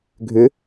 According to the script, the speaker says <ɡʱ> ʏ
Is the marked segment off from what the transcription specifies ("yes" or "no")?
no